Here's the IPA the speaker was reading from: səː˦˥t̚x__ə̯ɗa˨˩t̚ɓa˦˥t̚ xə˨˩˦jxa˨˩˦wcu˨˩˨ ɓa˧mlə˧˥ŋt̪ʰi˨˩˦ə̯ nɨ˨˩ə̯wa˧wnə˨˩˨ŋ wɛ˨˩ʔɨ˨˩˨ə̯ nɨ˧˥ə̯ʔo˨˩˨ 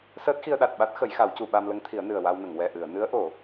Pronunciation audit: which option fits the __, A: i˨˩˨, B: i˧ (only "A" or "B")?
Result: B